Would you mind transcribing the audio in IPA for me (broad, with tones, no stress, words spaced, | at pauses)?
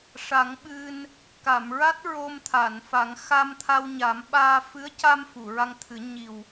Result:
ʂa˨˩˦ŋɓɨ˧n | ka˨˩˨mɹa˦˥t̚ ɹo˧mt̪ʰa˨˩˨nfa˨˩˦ŋ xa˧mt̪ʰa˧wɲa˨˩˦mɓaː˧ fɨ˧˥ə̯ca˧m fu˨˩˨ɹa˧ŋt̪ʰɨ˨˩˦ ɲi˨˩w